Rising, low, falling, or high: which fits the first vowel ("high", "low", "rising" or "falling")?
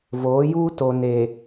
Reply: rising